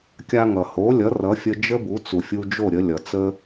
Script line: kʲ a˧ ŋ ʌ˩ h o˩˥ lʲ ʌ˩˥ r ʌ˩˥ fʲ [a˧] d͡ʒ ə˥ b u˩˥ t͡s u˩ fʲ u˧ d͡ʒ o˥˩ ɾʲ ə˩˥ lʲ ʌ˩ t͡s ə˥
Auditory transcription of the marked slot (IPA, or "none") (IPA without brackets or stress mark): ə˧